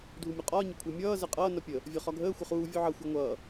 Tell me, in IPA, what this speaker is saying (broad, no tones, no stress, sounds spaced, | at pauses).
dʱ u mʲ ɒ qʼ ɒː ɲ ə kʷʰ əː mʲ ʌː z ɛ qʼ ʌː n ʌ pʲ ə | vʲ ɒ χ ɒ ɡʱ əː xʷ ə χ uː vʲ u ʕ ʌ xʷ əː ŋʷ ʌː